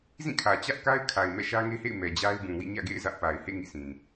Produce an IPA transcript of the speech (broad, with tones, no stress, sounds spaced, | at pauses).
z ĩ˦˨ kʰ ä˨ t͡ɕ ä˦ ʔ k a˦ ɪ̯ kʰ a˨ ɪ̯ m ɛ̰˦˨ ʃ ä˦ ŋ e˦ h ḛ˦˨ ɪ̯ m ɛ˨ d͡ʑ a˦ ɪ̯ b ũ˨ w ḭ˦˨ ɲ ä̰˦˨ ɡ ḛ˦˨ ɪ̯ z ä˦ ʔ p a˨ ɪ̯ h ḛ˦˨ ŋ ḭ˦˨ s ĩ˨